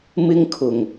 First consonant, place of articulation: labial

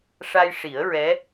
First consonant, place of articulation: retroflex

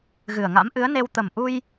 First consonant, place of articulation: velar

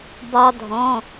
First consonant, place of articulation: labial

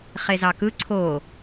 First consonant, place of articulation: uvular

